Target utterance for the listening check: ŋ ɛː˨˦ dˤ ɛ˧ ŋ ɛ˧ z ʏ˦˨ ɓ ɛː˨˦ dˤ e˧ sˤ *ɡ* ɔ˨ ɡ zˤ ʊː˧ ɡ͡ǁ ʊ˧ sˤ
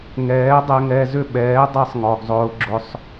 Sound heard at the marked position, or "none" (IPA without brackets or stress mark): ŋ